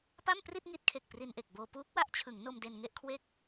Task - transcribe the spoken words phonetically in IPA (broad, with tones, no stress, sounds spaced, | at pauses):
p a˥˩ m p r i˥˩ t̚ ŋ i˦˥ t̚ kʰ e˨˩ k̚ p r i˧ n ʔ e˨˩ k̚ b oː˧ p uː˦˥ k̚ w a˦˥ ʔ t͡ɕʰ ɯ˩˦ ŋ n o˧ m d e˧ n ŋ e˥˩ ʔ kʰ w e˥˩ k̚